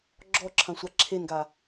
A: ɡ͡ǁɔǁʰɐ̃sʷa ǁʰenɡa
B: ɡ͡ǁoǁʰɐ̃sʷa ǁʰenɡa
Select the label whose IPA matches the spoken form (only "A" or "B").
A